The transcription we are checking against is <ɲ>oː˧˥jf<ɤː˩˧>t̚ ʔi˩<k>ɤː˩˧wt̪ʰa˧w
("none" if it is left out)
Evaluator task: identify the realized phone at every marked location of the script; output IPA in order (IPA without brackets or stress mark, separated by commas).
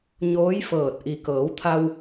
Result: ɲ, ɤː˧˩, k